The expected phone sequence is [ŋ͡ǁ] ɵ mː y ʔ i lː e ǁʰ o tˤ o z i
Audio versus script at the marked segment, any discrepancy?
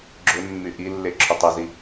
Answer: yes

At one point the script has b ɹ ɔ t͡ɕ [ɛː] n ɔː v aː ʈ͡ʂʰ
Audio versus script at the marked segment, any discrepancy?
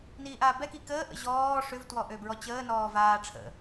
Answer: yes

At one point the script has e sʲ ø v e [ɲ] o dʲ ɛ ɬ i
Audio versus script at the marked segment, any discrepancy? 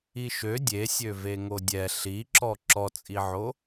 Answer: yes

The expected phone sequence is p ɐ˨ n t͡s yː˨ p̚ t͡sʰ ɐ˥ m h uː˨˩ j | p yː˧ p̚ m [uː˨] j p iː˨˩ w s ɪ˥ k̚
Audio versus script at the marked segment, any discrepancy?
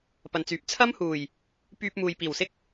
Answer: no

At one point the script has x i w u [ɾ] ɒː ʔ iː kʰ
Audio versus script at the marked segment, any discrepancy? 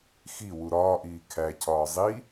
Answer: no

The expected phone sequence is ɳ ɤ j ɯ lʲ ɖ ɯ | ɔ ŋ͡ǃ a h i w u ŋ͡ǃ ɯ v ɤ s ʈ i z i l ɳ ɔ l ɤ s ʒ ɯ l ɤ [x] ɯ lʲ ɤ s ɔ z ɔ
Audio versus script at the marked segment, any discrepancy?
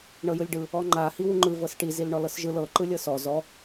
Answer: yes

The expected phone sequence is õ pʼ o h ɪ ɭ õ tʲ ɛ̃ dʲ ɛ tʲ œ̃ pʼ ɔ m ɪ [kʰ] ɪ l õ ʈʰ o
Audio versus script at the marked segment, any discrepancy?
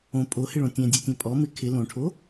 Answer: no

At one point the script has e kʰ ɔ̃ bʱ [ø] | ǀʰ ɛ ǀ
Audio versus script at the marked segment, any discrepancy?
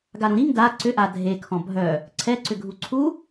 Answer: yes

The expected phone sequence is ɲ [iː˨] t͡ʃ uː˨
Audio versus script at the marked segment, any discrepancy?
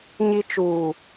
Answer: yes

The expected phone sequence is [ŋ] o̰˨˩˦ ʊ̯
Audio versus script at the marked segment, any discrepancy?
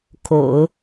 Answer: yes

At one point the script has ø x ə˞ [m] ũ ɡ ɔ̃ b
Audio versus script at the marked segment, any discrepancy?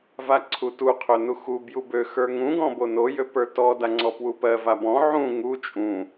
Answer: yes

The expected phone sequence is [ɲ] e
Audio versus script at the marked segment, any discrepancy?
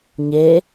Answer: no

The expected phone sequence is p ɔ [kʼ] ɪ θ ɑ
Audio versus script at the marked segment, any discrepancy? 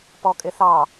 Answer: no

